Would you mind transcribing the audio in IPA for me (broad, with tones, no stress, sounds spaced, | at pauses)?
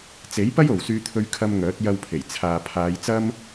t͡s e˨˥ j p ɐ˥ j o˨ w s yː˧ t̪ʰ ɵ˧ ɥ kʰ ɐ˧ m ŋ œː˨˥ t̚ j ɐ˧ w pʰ e˨˩ j t͡sʰ aː˨ pʰ aː˨˧ j t͡s ɐ˥ m